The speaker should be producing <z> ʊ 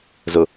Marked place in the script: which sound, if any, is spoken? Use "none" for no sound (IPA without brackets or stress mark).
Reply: z